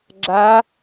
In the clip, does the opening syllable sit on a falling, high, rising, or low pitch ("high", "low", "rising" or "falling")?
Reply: rising